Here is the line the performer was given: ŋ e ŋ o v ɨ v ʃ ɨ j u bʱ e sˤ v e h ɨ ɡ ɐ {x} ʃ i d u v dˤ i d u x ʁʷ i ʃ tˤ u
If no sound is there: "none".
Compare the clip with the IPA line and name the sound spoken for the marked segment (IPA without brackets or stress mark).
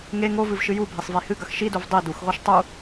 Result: x